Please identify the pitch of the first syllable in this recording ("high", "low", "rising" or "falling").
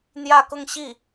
falling